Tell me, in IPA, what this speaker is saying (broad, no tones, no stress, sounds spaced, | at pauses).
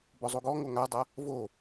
b ɔ zˤ o ɡ ɔ ŋ o ŋ a dˤ a | v o